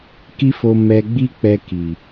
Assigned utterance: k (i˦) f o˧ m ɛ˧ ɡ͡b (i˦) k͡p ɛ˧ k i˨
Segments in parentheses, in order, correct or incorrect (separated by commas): correct, correct